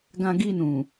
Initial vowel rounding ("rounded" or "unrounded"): unrounded